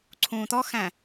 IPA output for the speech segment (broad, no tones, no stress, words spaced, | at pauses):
ǀʰũːt̪ɔxæ̃